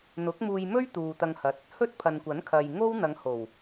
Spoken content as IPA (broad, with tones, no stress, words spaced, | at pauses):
n̪ʊ˨˥k̚muː˧jmɵ˥ɥ t̪uː˨t̪ɐ˧ŋhɐ˨t̚ | hɵ˥t̚pʰɐ˨nkʷɐ˨˥nkʰɐ˨j ŋo˥wn̪ɐ˨˧ŋho˨˩w